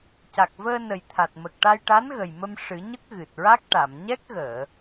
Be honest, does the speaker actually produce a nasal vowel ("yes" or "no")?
no